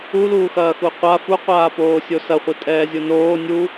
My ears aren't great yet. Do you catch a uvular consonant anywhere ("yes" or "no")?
yes